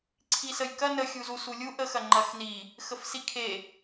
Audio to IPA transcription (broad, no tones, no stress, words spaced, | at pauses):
ǀʰisəjkɐ nə xʲuzus ulʲuʔ əx ɐŋ͡ǃɐxni | xəfsikʰe